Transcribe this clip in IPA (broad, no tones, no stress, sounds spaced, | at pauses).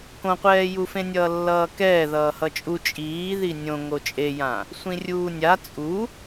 k õ qʷ ɛː j u f ẽ nʲ ʌː lː ʌː k ɛː ð ʌː h ʌ t͡ʃʼ u t͡ʃʼ iː ð i nʲ õ ŋ o t͡ʃʼ e j ã | sʷ ĩ rʲ uː nʲ a t͡sʼ u